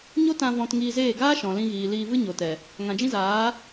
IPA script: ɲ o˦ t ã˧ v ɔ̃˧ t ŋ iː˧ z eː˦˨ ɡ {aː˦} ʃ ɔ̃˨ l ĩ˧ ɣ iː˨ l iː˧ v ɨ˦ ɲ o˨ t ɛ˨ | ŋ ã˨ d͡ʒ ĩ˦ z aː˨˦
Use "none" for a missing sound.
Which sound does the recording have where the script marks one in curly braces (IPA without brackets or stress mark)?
aː˦